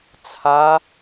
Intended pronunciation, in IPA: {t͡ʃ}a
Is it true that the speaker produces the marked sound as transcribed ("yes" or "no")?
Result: no